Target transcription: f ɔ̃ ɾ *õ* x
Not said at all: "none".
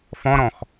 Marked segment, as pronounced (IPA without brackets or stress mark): ɔ̃